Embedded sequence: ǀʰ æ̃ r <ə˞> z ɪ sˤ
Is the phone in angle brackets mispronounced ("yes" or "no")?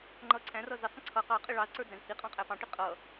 yes